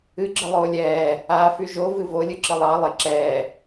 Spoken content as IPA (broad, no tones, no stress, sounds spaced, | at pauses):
ɨ ɡ͡ǁ ɨ lˠ oː lʲ ɛː | aː f y ʒ o v ɨ v o lʲ ɨ ǁ ɨ lˠ ɑ lˠ ɪ ǁ ɛː